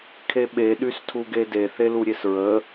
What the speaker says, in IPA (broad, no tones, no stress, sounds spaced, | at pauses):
kʰ e ɓ e ɗ y s tʰ u ɡ e d e θ e l u ɾʲ e s ɹ ə